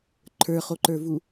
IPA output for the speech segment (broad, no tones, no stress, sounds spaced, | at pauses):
ǃʰ ə˞ χ o ǃ ə˞ v u